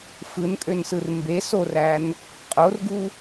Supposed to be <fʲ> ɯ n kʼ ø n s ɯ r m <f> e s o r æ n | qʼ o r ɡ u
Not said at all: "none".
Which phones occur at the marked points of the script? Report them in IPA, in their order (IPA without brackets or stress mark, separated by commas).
f, b